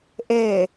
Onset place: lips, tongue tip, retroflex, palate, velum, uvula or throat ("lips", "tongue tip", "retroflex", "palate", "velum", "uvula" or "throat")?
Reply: throat